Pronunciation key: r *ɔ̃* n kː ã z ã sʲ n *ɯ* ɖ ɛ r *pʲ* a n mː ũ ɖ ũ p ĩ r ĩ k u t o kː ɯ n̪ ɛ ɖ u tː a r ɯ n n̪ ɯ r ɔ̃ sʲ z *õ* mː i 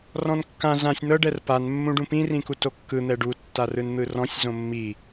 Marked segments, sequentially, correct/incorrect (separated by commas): correct, incorrect, incorrect, correct